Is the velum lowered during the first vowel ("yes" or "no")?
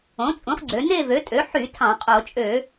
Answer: yes